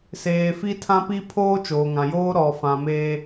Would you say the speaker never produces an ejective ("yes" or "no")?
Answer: yes